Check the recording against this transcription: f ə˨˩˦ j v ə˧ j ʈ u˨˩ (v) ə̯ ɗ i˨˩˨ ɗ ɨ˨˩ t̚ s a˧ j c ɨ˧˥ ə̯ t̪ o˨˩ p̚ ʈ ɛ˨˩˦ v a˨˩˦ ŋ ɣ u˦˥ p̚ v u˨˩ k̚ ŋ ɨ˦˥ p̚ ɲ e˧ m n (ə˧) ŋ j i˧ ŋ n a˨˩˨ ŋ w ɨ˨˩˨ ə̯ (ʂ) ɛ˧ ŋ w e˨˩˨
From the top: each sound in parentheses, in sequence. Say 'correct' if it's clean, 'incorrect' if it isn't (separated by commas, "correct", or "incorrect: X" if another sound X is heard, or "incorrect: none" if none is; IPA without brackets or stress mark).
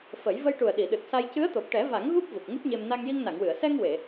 incorrect: none, incorrect: a˧, incorrect: s